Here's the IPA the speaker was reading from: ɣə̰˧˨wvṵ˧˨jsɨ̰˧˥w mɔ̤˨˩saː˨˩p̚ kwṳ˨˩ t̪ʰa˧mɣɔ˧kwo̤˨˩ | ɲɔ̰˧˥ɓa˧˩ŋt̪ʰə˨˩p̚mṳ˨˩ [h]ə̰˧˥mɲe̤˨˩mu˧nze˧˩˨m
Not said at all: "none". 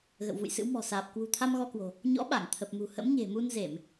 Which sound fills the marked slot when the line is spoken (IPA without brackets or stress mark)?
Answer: h